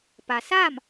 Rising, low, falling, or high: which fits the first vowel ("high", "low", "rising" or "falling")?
low